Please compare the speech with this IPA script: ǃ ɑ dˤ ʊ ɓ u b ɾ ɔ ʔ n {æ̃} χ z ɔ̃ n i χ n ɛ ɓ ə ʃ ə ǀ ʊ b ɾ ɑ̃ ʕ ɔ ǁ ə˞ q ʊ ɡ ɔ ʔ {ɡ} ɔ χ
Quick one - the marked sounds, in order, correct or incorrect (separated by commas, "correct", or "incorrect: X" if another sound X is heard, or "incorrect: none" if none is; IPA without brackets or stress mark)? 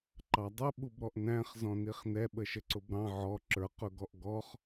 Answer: correct, correct